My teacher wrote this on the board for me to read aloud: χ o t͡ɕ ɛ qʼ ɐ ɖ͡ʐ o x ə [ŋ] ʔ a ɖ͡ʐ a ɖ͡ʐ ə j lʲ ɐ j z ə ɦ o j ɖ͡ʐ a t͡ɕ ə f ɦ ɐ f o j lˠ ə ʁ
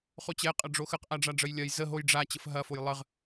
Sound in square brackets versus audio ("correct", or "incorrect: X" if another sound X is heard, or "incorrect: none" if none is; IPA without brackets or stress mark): incorrect: q